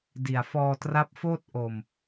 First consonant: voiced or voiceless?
voiced